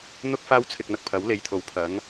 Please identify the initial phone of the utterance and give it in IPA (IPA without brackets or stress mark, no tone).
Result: n̪